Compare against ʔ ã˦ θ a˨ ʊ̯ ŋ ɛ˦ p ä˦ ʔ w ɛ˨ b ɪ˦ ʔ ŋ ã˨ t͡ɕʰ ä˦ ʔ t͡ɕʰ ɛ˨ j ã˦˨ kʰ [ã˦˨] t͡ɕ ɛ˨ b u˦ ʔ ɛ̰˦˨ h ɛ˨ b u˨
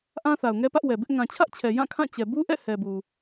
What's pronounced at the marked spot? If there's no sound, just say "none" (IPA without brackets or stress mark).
ã˦˨